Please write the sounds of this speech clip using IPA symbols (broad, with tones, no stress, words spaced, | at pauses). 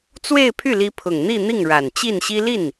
t͡swe˥˧ɪ̯pʰy˥˩li˧˥ pʰʊ˨˩ŋn̪i˥˧n̪i˥˩ŋ ɻa˨˩nt͡ɕi˥˩nɕi˥ li˥˩n